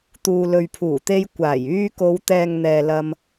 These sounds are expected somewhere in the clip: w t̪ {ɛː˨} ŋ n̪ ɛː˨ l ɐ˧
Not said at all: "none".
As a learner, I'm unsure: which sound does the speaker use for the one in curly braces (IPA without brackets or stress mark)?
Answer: ɛː˨